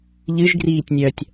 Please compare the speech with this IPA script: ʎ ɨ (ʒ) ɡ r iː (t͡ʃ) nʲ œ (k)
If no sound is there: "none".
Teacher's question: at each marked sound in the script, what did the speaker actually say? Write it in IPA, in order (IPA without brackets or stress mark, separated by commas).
ʒ, tʲ, tʲ